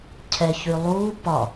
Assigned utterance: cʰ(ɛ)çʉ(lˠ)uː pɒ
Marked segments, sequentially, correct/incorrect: correct, correct

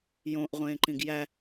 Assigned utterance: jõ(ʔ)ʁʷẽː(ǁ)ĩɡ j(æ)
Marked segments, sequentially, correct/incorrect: correct, incorrect, correct

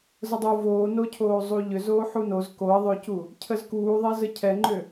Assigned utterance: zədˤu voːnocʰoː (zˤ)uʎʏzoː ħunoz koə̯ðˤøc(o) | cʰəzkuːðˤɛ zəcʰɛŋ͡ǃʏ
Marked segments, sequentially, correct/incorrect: correct, incorrect

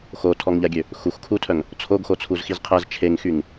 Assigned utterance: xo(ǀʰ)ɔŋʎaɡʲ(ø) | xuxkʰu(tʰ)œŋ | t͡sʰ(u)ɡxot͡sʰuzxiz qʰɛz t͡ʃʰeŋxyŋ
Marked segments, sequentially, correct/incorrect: incorrect, correct, correct, incorrect

